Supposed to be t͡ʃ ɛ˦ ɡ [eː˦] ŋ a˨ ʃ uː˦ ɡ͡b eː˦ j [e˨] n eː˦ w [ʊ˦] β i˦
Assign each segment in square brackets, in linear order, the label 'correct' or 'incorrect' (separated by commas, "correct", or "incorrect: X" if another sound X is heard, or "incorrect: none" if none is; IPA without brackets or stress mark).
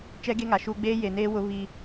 incorrect: e˦, correct, correct